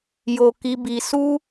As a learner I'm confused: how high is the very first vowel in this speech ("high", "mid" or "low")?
mid